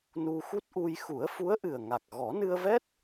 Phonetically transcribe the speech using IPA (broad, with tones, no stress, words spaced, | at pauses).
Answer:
nu˧xu˦˥t̚ʔu˧j xu˨˩˦ə̯fu˧˥ə̯ʔɨ˨˩ə̯ŋa˨˩k̚ ɣɔ˨˩˦nɨ˧ə̯vɛ˦˥t̚